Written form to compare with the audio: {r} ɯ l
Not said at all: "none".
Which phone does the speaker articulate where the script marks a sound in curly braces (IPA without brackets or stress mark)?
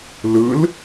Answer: l